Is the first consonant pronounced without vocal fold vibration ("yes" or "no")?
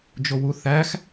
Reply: no